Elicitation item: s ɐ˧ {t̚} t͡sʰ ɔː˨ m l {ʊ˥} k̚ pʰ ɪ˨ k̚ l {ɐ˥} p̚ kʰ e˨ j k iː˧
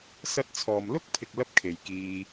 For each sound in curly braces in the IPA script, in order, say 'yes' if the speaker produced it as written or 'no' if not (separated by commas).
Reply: yes, yes, yes